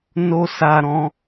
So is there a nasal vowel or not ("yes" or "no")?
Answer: yes